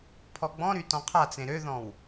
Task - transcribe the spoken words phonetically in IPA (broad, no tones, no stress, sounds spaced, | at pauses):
pʰ ɔ ɡ͡b ɔ̃ ɾ y t ɔ̃ qʰ a t͡s ẽ ɾ ø ð ɔ̃ w